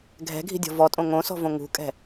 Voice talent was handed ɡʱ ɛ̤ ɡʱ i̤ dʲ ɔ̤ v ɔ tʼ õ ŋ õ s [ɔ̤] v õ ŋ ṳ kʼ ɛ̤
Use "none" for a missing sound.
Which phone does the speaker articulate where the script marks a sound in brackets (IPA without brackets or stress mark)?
ɔ̤